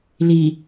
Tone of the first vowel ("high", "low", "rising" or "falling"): low